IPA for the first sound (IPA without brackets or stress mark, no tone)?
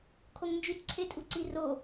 kʰ